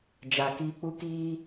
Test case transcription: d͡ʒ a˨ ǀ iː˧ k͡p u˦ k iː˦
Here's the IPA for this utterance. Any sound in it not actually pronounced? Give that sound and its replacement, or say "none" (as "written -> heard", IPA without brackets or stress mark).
ǀ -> k